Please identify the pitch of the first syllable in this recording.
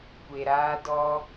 low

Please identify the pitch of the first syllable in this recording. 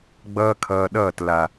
high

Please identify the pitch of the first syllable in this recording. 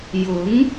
rising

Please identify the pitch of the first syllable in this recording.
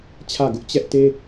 falling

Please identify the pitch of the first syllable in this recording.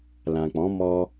low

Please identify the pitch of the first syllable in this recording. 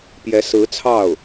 rising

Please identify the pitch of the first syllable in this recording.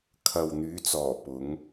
low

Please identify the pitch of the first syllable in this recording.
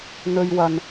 low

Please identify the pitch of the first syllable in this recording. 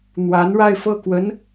rising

